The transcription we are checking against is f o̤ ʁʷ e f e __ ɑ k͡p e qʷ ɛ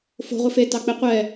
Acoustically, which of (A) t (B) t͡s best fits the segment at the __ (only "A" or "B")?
A